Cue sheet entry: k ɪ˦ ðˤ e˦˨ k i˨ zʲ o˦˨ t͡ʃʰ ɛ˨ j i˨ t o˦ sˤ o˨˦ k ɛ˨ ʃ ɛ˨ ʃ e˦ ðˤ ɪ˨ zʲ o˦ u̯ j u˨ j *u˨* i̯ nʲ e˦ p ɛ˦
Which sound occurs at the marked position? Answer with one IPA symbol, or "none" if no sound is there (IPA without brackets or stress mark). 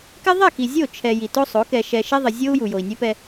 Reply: o˨